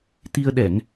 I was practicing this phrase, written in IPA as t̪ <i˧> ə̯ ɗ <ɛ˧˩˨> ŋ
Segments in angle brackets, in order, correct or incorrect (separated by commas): correct, correct